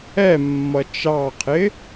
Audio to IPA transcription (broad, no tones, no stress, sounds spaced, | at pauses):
ɛ mː ʌ t͡ʃ ɑ qʰ ɪ